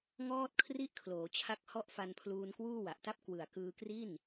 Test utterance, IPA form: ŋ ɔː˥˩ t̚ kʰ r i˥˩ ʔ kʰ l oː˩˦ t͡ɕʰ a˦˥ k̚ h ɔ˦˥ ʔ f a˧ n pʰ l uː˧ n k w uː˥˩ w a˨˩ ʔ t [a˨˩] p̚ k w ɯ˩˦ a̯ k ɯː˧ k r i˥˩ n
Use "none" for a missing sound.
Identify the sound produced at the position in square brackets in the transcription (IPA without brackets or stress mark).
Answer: a˥˩